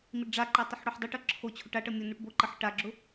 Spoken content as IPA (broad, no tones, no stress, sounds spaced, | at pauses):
m i ɖ ɖ͡ʐ a ǃ a tˤ ʊ ħ ɽ o ħ dˤ ʊ ʈ ʌ ǁʰ o t͡ɕʰ ʊ ʈ a ʈ ʌ mʲ o n u ʈ b o ǃ ʌ ħ ʈ a ɡ͡ǁ ʊ